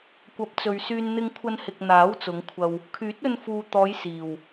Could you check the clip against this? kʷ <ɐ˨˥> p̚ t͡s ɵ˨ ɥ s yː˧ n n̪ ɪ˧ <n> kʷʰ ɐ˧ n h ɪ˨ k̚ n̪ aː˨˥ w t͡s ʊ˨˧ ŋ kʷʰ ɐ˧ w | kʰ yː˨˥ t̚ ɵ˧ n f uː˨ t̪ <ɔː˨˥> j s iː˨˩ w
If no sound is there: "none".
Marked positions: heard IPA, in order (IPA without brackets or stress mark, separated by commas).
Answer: ɐ˨˥, ŋ, ɔː˨˧